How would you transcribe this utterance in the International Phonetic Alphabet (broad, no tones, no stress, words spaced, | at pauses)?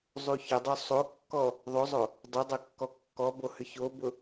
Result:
zˤuçʊdˤo sˤokːɔ | ðˤozˤo | dˤodˤo kːɔkːɔbo hʏçobʊ